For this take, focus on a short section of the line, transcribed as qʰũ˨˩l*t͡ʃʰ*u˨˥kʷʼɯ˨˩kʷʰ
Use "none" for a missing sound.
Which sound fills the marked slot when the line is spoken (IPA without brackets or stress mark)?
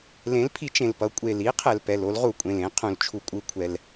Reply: t͡ʃʰ